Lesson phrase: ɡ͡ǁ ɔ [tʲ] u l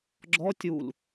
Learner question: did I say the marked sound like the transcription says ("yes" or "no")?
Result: yes